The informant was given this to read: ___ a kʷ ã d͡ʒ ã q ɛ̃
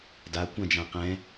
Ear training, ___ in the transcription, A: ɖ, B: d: B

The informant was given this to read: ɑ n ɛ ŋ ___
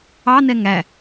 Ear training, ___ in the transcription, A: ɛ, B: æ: B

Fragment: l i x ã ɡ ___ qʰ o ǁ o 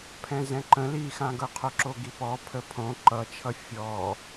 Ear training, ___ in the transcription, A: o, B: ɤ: B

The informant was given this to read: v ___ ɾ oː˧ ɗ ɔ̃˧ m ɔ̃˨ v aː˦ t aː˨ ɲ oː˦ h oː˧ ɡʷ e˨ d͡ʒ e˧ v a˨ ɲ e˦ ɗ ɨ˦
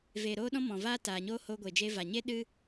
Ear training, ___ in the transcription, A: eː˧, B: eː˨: B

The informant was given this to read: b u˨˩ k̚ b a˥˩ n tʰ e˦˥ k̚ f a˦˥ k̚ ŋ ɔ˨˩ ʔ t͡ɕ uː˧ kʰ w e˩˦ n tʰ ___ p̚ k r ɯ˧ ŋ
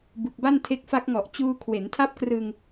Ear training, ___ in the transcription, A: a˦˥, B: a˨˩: A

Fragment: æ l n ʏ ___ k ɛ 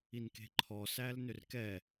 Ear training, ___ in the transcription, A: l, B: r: B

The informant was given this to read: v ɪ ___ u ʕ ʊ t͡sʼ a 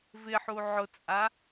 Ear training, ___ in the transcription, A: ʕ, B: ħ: B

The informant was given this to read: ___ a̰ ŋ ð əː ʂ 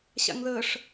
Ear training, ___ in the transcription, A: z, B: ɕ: B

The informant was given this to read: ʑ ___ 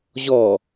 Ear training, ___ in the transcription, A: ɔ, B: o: A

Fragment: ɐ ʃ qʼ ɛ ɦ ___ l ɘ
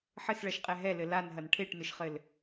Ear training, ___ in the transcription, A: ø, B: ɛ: B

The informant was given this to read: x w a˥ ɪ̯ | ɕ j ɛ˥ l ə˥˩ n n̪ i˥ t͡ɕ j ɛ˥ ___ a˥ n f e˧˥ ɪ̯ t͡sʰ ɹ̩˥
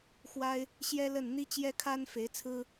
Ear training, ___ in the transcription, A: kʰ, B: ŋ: A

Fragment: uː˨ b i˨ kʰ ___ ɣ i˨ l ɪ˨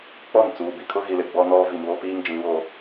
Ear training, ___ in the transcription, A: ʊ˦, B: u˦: A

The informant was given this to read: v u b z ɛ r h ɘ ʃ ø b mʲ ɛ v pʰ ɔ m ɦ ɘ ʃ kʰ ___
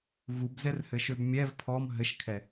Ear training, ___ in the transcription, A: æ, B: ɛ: B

